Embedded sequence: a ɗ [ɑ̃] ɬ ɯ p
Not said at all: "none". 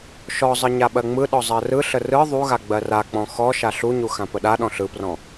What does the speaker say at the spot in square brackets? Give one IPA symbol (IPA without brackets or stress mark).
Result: ɔ̃